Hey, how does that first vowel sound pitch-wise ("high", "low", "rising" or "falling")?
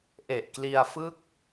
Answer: low